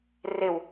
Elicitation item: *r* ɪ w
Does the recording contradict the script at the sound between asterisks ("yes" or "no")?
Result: no